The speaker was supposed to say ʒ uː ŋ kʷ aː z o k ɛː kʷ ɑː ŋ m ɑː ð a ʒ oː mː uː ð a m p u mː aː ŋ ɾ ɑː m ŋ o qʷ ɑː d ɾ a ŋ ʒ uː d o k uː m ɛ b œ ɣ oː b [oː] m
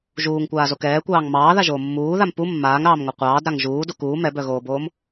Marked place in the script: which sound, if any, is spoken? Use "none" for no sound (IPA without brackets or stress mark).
oː